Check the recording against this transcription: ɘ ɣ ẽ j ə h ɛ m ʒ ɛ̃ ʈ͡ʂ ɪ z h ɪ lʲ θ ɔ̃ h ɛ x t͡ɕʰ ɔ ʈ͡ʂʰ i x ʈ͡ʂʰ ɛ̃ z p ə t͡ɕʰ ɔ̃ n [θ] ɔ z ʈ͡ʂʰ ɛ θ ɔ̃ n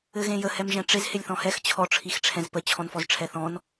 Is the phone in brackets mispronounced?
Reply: yes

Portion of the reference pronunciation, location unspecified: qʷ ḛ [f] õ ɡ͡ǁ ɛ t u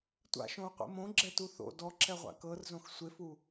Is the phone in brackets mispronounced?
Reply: yes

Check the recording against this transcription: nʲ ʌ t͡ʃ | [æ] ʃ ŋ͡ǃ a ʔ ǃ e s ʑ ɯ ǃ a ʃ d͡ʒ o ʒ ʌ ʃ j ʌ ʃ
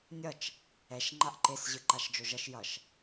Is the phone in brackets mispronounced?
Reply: yes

